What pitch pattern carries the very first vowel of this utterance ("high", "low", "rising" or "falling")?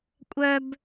high